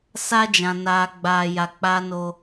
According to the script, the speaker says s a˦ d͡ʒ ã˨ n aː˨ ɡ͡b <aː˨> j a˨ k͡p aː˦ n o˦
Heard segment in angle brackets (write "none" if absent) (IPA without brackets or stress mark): aː˨